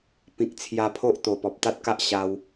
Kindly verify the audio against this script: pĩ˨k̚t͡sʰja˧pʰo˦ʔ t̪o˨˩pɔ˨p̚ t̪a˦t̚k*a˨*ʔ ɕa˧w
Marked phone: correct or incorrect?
incorrect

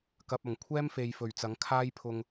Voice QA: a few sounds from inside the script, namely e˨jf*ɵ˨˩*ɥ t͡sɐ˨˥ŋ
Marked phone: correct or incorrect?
correct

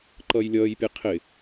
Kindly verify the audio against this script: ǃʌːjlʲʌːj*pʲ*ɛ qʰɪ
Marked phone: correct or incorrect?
correct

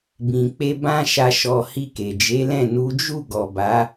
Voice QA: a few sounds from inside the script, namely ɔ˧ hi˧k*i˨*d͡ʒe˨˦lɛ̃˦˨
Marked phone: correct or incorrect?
incorrect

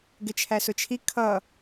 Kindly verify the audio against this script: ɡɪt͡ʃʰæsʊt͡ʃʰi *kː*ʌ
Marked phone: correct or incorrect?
incorrect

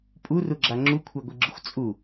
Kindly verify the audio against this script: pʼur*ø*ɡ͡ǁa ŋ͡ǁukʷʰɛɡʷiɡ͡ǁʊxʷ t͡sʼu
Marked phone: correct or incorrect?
incorrect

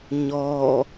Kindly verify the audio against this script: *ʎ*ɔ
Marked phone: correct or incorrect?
incorrect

